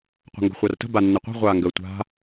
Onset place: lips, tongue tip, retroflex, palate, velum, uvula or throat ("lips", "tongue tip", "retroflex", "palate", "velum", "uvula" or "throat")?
uvula